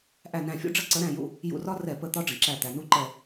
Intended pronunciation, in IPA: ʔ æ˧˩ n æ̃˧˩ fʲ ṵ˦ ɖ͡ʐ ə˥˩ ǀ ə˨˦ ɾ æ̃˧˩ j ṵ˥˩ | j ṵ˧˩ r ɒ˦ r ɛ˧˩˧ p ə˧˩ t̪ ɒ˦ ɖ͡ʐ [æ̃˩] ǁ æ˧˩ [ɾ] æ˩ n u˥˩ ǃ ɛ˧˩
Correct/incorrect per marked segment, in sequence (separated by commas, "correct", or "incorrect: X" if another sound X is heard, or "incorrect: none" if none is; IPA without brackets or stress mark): incorrect: ə̃˩, incorrect: t̪